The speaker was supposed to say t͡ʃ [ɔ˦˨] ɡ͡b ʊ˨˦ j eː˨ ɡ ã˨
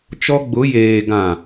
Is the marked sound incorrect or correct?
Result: incorrect